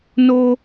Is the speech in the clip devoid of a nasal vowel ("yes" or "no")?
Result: yes